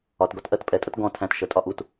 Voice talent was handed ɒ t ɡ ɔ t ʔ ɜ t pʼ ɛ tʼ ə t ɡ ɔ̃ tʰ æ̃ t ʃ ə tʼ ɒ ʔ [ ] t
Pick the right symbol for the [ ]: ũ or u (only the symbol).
u